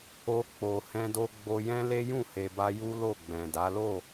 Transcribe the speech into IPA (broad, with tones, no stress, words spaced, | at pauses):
o˧ k͡po˨ hɛ̃˧do˧ɡ͡bo˧jɛ̃˦ le˦jũ˦˨he˨ba˧ ju˦ lo˦˨ɡ͡bɛ̃˨da˨˦ lo˦˨